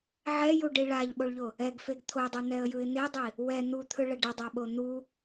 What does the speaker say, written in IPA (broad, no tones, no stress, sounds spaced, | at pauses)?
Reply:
ʕ ɛ j u ɖ i ɭ a ʎ ɓ o ɭ ʎ o | ɛ ɡ f e ɡ t̪ʰ o dˤ ɤ n̪ ɛ ə̯ j ɯ ɪ̯ n̪ e dˤ i | w ɛ n̪ u t̪ʰ ɯ ɭ ɛ ɖ ɛ dˤ a ɓ o n̪ u